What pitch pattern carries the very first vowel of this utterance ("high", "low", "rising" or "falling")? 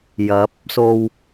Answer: rising